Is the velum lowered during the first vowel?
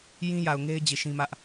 yes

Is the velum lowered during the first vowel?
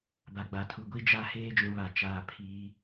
no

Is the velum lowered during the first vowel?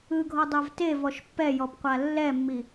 no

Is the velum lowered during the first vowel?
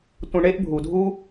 yes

